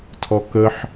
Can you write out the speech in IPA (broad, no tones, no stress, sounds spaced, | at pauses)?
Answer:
tʰ ɔ k ə ħ